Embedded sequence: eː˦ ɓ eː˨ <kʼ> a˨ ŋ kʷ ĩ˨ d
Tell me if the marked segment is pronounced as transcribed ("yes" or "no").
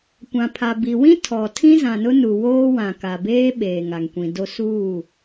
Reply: no